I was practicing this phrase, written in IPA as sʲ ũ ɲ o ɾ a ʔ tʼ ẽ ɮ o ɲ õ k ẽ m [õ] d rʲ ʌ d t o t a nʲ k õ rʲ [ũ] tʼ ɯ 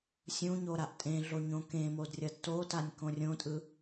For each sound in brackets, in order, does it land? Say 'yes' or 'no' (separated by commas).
no, no